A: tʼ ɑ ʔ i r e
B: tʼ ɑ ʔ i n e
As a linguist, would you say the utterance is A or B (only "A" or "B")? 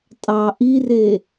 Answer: A